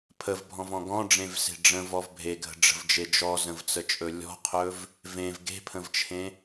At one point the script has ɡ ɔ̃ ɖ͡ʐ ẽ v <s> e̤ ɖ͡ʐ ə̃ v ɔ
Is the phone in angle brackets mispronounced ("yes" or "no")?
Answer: no